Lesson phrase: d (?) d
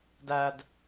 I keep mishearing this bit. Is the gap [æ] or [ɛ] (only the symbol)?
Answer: æ